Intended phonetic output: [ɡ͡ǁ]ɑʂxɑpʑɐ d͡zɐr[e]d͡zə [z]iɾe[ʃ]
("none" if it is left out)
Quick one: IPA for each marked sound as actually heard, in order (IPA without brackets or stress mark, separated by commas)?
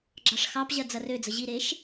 ɡ͡ǁ, ø, ʑ, ʃ